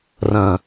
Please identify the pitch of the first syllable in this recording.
low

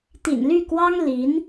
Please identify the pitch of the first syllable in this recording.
low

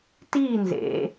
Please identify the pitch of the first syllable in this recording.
falling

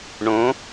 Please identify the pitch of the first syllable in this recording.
rising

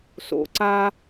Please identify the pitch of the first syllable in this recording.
low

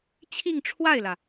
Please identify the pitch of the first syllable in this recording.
falling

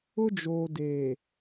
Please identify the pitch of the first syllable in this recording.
high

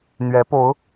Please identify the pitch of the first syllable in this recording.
rising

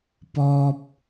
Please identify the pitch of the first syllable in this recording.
high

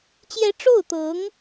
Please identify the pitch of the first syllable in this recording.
rising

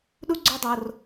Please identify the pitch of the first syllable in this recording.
high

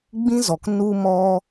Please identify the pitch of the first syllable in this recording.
high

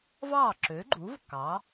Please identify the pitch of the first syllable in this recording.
falling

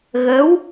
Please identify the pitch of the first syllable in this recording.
rising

